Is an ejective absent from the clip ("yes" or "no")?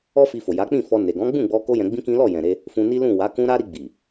yes